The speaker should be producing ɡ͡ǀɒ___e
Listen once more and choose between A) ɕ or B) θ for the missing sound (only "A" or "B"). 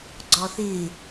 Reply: B